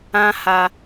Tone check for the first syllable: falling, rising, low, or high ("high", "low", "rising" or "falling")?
high